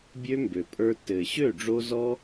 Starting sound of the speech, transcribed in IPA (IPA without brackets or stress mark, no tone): bʲ